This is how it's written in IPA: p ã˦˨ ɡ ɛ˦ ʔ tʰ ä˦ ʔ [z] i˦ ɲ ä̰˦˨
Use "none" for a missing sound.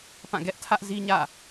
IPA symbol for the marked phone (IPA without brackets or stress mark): z